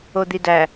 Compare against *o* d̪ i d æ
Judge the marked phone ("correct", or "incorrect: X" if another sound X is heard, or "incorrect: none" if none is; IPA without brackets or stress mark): correct